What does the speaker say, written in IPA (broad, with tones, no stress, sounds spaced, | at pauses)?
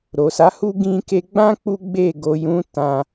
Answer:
ɾ o˨ s a˨˦ h u˦ ɡ ĩ˧ k e˧ ɡ͡b ã˦ k͡p u˦ ɡ͡b e˦˨ ɡ o˨ j ũ˨˦ t ã˧